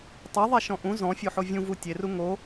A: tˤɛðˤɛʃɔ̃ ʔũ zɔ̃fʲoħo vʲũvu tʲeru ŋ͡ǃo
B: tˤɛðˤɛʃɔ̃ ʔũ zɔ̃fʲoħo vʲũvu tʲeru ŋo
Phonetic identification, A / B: B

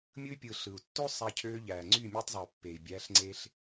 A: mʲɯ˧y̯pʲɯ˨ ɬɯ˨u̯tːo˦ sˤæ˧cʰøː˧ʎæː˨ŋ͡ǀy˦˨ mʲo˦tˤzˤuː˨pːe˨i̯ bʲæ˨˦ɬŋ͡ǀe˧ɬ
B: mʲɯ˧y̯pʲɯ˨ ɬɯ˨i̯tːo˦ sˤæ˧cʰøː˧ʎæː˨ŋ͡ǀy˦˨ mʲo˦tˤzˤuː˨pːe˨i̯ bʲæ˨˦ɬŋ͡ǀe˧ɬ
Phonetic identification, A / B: A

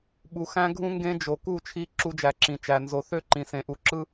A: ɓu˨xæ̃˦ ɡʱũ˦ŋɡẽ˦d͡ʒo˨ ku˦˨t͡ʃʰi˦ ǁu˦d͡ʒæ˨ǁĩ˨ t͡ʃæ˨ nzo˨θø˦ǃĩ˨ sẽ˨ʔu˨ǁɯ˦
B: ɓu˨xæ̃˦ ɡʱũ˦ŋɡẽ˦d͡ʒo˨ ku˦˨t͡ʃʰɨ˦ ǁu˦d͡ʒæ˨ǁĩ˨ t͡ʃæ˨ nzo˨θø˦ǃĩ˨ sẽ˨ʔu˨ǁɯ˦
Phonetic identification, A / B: A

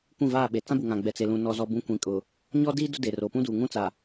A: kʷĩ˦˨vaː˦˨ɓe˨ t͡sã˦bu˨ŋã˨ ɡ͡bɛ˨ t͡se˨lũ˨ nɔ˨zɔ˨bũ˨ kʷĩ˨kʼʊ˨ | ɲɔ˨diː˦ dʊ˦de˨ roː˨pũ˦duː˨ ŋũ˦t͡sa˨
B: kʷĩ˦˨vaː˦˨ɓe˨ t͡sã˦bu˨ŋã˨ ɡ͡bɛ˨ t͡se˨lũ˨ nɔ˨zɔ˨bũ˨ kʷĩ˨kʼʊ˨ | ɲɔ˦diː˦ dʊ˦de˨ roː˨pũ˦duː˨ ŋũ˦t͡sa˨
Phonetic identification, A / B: B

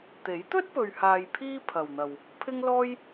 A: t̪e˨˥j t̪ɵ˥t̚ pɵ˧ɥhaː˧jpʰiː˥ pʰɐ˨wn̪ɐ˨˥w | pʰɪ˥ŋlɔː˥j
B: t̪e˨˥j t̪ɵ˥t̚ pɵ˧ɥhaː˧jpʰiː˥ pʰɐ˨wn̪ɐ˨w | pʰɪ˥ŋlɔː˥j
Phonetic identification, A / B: B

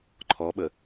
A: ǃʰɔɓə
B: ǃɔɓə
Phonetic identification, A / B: A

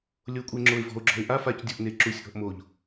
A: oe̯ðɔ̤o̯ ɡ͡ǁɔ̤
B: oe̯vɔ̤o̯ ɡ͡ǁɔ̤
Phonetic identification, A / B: B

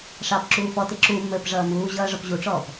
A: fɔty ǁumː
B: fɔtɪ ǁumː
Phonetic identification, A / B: B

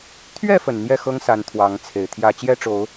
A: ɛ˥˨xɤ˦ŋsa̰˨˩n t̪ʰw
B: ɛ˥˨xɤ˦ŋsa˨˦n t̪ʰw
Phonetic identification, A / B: B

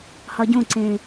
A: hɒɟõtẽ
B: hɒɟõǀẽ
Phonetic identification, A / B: B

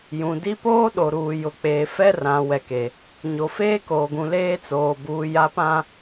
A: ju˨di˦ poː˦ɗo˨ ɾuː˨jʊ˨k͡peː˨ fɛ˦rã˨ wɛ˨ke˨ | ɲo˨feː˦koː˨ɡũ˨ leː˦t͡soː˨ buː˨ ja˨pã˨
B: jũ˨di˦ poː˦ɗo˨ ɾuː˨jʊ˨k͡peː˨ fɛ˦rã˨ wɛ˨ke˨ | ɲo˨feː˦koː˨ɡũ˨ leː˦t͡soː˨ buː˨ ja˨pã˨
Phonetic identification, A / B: B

